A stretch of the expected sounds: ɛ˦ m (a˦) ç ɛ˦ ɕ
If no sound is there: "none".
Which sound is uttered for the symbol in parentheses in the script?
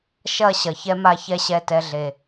a˦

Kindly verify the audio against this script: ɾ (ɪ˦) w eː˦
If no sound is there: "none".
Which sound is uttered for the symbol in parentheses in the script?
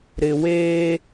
ɪ˨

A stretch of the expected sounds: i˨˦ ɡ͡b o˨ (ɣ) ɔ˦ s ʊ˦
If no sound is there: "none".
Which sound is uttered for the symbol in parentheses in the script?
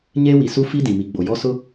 j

